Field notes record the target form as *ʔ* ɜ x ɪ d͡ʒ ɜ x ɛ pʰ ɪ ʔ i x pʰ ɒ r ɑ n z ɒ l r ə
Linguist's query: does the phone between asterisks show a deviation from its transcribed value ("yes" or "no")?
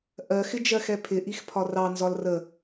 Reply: no